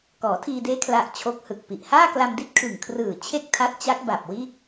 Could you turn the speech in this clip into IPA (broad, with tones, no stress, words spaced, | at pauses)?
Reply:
kɔː˩˦tʰiː˧deː˦˥ kʰla˦˥ʔ t͡ɕʰo˦˥k̚hɯ˨˩k̚pi˨˩ʔ haː˥˩kla˧mdi˥˩t̚ kʰɯ˨˩ŋkʰrɯː˨˩ t͡ɕʰe˥˩k̚tʰa˦˥t̚t͡ɕa˦˥k̚ ba˨˩p̚ wiː˥˩k̚